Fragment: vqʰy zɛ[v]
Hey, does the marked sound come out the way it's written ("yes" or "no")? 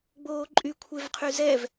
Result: yes